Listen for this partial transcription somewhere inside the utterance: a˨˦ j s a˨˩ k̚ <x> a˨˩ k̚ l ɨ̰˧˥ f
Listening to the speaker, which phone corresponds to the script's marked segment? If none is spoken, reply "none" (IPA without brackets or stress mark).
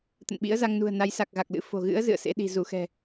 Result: ɣ